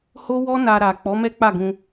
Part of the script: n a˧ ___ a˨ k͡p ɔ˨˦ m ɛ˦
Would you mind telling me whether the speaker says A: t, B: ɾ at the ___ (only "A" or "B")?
B